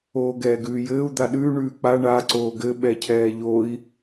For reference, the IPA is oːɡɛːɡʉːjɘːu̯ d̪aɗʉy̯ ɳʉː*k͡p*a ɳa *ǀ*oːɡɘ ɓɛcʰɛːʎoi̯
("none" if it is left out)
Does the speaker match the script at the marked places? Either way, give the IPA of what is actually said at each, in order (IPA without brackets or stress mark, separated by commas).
k͡p, ǀ